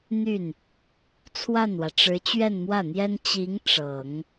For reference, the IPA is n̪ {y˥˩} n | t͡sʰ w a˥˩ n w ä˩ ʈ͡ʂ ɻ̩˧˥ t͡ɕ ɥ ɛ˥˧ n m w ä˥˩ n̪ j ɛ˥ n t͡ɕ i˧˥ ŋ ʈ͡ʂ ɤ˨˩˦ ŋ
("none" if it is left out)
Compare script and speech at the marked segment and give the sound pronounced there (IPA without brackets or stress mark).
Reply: y˥˩